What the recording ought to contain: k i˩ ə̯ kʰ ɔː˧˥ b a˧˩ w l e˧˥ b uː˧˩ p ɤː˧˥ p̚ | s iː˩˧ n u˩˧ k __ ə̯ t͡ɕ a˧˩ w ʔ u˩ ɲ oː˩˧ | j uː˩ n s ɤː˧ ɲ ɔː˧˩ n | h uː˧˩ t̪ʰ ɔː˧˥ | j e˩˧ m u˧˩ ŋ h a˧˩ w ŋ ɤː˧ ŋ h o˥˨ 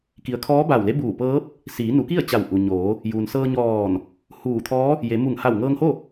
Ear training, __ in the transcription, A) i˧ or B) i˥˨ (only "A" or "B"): B